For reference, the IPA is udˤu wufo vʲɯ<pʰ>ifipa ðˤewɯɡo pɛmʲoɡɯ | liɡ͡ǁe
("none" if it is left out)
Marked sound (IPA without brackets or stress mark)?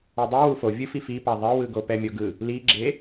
f